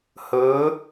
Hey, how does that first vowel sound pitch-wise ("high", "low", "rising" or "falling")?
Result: rising